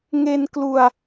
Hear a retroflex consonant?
no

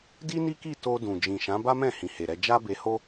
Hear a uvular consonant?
no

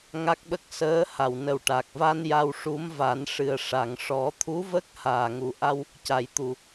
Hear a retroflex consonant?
yes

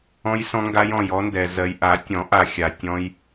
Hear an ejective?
no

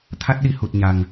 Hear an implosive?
yes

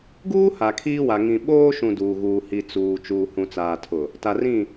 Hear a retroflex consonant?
no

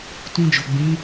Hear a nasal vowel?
yes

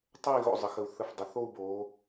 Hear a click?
no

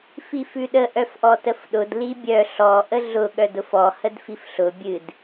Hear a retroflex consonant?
no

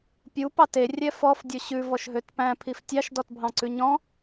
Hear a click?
yes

